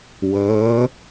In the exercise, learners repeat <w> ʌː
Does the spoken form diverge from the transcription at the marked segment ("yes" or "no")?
no